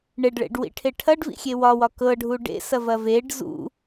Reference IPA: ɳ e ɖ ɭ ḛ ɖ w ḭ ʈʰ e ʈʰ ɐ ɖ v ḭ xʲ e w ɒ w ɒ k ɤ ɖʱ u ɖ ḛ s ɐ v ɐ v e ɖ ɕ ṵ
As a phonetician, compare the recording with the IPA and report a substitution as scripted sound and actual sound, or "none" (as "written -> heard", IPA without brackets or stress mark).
ɕ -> z